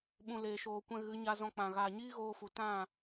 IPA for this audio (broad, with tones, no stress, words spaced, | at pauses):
ɓũ˨ leː˨ʃoː˨kʷɛ̃˧ ɣɨ˨˦ɲa˧ zɔ̃˧k͡pã˨ ɣaː˨ɲiː˦ɣoː˧fu˨ tã˦˨